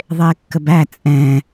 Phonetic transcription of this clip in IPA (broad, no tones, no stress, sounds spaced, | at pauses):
ðˤ ɪː kː ə b æ t͡sʼ ɛ̃